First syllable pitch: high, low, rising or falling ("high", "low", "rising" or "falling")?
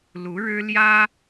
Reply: rising